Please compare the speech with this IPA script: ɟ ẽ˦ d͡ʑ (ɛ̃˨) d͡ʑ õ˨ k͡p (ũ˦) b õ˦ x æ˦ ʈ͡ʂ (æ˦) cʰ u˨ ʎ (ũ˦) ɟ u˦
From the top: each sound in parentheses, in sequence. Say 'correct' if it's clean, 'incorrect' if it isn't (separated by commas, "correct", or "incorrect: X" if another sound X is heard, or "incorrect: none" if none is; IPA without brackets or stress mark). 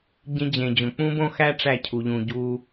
incorrect: ẽ˨, correct, incorrect: æ˦˨, incorrect: ũ˨